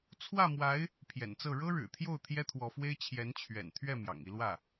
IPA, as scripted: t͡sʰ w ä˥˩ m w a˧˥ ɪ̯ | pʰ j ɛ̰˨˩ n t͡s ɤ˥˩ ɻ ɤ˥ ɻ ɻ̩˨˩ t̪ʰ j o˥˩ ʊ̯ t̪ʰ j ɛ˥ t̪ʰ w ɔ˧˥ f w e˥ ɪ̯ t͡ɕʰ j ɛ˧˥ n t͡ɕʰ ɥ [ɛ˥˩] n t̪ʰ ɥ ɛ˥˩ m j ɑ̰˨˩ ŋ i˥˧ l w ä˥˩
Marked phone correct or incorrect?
incorrect